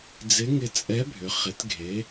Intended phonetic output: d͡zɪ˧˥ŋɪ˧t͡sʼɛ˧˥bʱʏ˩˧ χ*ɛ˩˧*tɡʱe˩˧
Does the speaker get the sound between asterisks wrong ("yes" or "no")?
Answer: yes